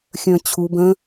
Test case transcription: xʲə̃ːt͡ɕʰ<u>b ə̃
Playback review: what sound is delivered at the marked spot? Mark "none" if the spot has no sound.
u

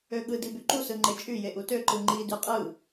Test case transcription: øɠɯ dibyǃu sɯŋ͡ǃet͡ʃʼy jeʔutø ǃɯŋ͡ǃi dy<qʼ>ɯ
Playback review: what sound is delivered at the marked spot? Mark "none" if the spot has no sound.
qʼ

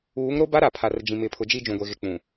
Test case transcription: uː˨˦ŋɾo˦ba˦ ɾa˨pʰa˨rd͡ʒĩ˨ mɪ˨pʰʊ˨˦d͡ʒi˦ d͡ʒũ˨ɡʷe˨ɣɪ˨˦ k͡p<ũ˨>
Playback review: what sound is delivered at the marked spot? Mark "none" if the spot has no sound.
ũ˨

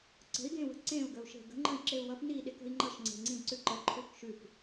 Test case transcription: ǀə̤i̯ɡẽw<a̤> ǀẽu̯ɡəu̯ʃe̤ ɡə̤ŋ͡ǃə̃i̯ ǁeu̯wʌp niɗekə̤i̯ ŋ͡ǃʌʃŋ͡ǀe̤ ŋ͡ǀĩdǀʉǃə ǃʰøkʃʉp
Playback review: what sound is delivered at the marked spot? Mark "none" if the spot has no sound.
ə̤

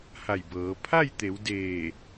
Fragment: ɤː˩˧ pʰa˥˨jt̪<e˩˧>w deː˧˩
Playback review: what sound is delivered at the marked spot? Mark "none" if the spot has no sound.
e˩˧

